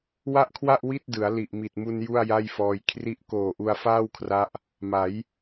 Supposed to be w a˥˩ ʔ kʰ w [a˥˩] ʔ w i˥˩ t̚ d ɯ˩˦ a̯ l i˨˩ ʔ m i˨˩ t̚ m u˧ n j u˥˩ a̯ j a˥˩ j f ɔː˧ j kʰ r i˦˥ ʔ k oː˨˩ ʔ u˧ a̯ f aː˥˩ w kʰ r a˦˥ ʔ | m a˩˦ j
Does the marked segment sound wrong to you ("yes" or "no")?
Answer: no